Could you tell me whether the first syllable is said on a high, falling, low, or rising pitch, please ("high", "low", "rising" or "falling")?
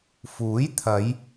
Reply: rising